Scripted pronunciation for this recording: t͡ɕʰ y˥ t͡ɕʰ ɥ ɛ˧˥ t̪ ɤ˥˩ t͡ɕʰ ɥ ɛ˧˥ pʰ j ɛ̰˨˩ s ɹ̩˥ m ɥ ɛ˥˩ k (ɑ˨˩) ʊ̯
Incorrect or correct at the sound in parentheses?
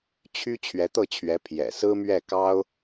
incorrect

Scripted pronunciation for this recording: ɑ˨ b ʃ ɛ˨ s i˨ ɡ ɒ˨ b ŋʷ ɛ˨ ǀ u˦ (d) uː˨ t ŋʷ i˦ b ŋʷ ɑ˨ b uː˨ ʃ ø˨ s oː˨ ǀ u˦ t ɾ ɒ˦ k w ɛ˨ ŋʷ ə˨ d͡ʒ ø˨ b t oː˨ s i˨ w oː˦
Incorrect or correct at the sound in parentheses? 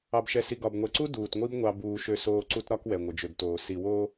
correct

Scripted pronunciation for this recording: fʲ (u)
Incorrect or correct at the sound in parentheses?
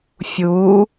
correct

